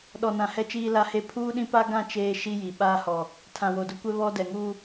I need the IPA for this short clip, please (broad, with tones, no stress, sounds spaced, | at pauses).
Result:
ɗ ɔ˨ n ã˨ h ɛ˦ t͡ʃ iː˦ l a˦ h e˦ pʰ uː˦ ɗ ĩ˦ p a˦ ɡ ã˦˨ t͡ʃ eː˦ ʃ i˦ j i˨ ɓ aː˦ h ɔ˨ | tʰ ã˨ w o˨ d ʊ˦ kʷ ɛ˦ β ɔ˦ d ɛ˨ ŋ u˦